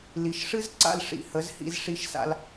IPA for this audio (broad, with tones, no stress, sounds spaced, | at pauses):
l i˨ ʃ ʂ ɨ˦ z ǀ a̰˧ l ʂ ḭ˨ h ə˨˦ z h ḭ˧ z ʂ i˧ ʃ s a̰˧ l